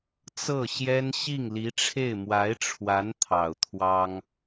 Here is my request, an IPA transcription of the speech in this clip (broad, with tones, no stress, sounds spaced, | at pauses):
t͡s ɤ˥˩ ɕ j ɛ˥ n ɕ i˥˩ ŋ l i˧˥ ʈ͡ʂʰ e˥˩ ɪ̯ m w a˧˥ ɪ̯ ʈ͡ʂʰ w a˧˥ n t̪ʰ ɑ˨˩ ʊ̯ t̪ʰ w ɑ˥ ŋ